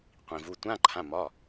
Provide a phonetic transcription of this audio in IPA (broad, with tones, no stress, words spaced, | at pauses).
qʷĩ˩vu˩˧˩tʷã˧˥˧ ǃʰã˩˧˩mɒ˩˧˩